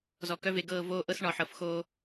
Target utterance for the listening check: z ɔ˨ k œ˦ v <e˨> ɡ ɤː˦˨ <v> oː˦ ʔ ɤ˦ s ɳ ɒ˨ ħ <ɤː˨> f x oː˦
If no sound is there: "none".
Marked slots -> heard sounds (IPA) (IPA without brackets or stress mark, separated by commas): e˨, v, ɤ˨